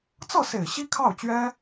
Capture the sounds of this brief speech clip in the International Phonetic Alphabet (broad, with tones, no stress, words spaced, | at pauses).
t͡sɤ˥˩se˨˩ɪ̯ ɕi˥kʰɑ˥˩ʊ̯t͡ɕɥɛ˥